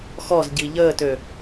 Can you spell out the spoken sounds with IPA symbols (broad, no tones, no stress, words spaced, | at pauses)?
xɔzɟi ʎəːtø